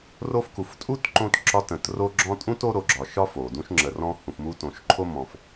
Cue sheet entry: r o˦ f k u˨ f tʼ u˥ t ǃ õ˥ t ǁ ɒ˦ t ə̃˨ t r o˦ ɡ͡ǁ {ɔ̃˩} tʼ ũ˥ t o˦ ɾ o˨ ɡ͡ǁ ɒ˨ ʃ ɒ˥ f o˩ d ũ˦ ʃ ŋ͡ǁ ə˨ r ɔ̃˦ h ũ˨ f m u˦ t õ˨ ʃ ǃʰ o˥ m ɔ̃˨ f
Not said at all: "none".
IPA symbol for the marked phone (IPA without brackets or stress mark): ɔ̃˦